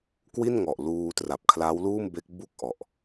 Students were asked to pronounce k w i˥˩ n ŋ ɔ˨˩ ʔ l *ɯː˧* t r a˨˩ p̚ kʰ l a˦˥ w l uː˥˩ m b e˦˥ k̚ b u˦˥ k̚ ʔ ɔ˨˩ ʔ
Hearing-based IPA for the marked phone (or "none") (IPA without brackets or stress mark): uː˧